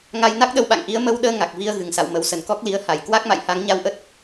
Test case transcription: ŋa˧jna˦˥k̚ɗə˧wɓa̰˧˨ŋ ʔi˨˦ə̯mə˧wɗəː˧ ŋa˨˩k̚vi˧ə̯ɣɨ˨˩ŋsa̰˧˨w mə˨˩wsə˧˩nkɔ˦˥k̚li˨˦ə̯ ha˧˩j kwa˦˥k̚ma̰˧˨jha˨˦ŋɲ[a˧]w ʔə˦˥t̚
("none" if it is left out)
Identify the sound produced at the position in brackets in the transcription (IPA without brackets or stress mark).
a˧